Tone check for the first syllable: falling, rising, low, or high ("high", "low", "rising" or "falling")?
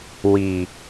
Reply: low